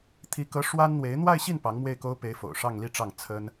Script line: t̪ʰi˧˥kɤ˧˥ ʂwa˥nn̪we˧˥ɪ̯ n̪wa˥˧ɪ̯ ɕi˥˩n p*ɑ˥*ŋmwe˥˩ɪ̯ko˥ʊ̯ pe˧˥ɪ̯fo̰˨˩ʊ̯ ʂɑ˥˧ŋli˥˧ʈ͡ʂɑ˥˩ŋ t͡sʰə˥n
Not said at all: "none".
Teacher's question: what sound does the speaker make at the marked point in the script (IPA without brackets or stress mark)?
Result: ɑ˧˥